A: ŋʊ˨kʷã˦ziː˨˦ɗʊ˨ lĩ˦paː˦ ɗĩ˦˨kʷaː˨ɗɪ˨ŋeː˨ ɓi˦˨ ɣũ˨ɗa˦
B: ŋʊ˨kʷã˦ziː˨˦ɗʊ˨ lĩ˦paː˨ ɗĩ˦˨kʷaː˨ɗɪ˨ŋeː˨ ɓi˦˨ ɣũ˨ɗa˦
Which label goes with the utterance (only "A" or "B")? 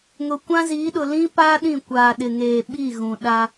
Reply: A